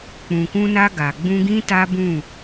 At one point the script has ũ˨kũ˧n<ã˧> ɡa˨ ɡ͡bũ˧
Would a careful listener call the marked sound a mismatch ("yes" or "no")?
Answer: yes